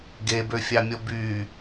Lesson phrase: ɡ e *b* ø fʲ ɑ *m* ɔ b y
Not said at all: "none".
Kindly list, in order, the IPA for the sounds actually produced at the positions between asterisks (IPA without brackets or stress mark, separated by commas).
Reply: b, mʲ